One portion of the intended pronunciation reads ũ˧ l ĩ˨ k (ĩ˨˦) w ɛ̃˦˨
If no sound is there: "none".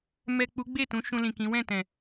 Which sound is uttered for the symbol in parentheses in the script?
ĩ˨˦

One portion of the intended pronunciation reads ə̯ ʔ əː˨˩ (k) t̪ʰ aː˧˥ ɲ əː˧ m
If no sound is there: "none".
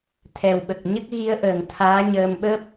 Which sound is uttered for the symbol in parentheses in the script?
ŋ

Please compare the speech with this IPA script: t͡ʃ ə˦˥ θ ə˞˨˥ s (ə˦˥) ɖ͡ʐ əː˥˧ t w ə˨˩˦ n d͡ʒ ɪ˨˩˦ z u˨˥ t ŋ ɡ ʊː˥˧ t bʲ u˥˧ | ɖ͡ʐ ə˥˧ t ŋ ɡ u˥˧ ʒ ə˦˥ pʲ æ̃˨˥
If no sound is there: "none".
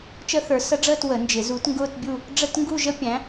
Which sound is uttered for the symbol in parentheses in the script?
ə˦˥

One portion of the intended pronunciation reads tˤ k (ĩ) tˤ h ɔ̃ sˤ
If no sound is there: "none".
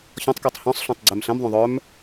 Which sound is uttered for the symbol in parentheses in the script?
i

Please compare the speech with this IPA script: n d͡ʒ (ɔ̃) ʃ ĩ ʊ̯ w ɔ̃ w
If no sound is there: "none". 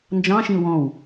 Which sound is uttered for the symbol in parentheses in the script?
ɑ̃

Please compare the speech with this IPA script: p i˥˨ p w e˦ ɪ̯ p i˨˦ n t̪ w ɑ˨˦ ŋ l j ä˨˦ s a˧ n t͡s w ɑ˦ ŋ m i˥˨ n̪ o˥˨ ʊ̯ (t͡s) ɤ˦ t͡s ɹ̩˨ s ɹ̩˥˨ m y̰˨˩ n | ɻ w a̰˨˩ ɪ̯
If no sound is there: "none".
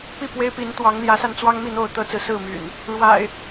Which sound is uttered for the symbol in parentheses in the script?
t̪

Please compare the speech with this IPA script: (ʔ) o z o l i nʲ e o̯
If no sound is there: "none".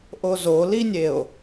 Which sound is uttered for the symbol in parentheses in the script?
ʔ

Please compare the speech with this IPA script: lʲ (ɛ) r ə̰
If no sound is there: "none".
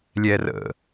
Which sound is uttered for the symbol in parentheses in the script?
ɛ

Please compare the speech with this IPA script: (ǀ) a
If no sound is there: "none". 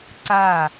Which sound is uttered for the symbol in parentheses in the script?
ǀ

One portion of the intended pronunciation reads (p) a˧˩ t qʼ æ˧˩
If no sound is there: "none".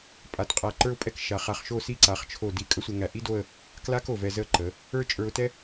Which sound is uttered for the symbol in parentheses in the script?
pʼ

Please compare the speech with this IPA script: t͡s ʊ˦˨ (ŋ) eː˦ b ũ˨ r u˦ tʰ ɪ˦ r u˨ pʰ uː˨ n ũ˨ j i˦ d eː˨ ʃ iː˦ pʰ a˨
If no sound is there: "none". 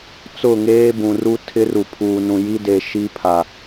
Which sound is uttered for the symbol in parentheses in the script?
ŋ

